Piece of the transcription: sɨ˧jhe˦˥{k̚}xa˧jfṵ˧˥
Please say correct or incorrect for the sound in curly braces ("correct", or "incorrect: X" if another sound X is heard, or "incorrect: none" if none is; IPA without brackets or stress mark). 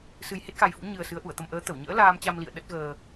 incorrect: t̚